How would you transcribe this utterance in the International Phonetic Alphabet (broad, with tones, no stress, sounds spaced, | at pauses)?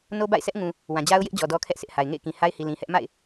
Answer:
n o˦ b a̰˦˨ ɪ̯ sʰ ɛ˦ ʔ ŋ ũ˨ | w ã˨ d͡ʑ a˦ ʊ̯ j ɪ˦ ʔ d͡ʑ ɔ˨ d ɔ˦ kʰ ɛ˦ ʔ sʰ ɪ˦ ʔ h a˨ ɪ̯ ŋ ḛ˦˨ ɪ̯ k ĩ˨ h a˦ ɪ̯ h i˨ l ĩ˨ h ɛ˦ ʔ m a̰˦˨ ɪ̯